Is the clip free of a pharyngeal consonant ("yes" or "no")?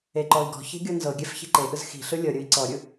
yes